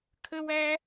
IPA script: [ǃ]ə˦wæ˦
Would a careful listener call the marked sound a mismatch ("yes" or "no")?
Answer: yes